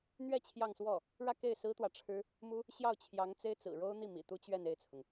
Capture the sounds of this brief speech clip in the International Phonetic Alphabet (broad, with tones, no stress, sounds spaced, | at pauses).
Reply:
n̪ ɥ ɛ˥˧ t͡ɕʰ j ɑ˥˧ ŋ s w ɔ˥˩ | ɻ ä˥˧ k e˥˩ ɪ̯ s ɹ̩˥ t̪ w ä˨ ʈ͡ʂʰ ɻ̩˥ | m u˥ | ɕ j ɑ˥˩ ʊ̯ t͡ɕʰ j ɑ˧˥ ŋ t͡s e˥ ɪ̯ t͡s ɹ̩˨˩ ɻ o˥ ʊ̯ n̪ i˥˩ m ḭ˨˩ t̪ u˥ t͡ɕ ɥ ɛ˥˧ n e˥˩ ɪ̯ t͡sʰ ʊ˩ ŋ